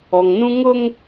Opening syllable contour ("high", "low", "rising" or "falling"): low